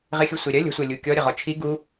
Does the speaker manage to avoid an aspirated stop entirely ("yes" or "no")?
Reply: no